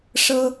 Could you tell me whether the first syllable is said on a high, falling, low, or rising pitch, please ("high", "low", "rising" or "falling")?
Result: high